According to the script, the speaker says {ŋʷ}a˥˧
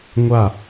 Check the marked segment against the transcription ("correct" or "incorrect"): correct